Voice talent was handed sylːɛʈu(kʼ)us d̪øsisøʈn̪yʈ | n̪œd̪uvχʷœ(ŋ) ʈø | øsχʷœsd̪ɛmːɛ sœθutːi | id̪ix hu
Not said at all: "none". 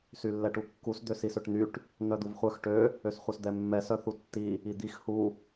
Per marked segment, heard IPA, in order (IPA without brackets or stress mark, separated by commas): kː, x